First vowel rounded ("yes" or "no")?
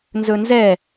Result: yes